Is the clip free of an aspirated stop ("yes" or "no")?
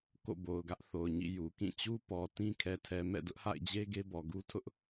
no